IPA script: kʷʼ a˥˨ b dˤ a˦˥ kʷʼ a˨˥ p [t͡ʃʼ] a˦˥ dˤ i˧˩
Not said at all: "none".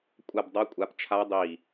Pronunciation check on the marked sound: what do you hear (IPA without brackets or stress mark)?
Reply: t͡ʃʰ